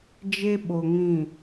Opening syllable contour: high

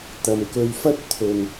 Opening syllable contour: low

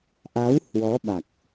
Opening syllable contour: rising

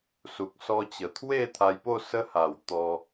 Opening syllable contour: low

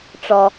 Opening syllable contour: low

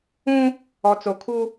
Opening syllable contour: high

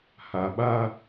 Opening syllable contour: low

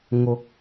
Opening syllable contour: rising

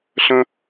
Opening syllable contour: high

